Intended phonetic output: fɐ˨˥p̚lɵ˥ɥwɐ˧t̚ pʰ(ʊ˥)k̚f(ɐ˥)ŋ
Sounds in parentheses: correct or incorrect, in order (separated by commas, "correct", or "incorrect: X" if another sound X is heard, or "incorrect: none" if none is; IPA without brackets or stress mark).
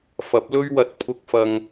incorrect: ʊ˧, incorrect: ɐ˧